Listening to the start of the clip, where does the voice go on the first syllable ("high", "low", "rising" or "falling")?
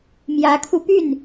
rising